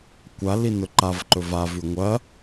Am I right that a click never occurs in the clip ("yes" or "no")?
no